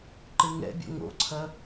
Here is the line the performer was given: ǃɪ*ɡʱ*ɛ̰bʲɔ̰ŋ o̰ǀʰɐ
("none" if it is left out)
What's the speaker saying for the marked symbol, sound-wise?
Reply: ŋ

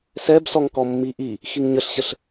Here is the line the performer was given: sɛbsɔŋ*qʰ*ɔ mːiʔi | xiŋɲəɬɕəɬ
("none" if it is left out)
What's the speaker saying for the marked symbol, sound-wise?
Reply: k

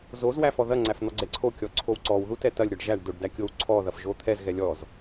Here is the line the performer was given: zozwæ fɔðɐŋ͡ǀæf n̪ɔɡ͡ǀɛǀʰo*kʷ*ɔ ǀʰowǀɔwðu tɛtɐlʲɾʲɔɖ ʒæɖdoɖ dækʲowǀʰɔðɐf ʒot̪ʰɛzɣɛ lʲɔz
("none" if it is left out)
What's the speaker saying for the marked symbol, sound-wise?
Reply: kʲ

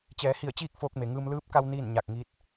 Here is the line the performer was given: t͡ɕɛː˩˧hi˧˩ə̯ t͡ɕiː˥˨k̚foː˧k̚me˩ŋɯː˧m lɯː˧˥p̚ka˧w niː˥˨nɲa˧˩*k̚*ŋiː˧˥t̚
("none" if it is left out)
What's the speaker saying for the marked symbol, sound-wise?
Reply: k̚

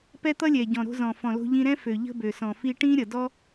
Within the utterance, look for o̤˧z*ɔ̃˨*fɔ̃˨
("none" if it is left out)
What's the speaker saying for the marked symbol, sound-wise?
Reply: ɔ̃˨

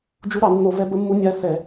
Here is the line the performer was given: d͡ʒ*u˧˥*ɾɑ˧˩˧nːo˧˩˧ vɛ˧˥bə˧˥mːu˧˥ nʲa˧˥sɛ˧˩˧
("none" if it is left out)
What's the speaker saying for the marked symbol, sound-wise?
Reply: u˧˥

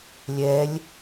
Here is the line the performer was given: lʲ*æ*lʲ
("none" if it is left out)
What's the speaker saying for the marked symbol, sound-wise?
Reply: ɛ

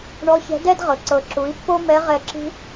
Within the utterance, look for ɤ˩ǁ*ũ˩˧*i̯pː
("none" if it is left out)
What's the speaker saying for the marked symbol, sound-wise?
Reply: u˩˧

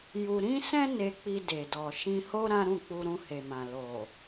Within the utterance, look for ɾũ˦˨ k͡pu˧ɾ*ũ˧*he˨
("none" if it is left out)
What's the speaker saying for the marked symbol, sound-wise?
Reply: ũ˧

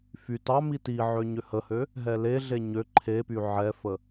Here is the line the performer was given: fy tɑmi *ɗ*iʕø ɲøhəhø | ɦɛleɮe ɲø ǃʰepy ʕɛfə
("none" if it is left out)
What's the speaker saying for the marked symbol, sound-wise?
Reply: t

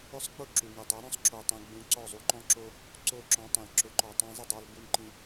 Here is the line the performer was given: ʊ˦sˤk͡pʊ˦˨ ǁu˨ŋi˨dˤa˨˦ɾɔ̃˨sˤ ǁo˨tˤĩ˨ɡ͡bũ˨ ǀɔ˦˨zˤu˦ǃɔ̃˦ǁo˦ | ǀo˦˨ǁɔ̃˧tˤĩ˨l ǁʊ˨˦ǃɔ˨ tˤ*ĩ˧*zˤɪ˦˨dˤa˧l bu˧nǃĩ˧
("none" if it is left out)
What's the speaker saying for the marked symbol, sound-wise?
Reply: ĩ˧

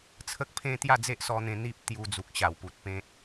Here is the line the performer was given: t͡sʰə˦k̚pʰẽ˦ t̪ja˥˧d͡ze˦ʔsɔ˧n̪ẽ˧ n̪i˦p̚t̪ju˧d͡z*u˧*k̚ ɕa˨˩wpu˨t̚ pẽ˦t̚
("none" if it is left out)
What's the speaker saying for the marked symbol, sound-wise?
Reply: u˨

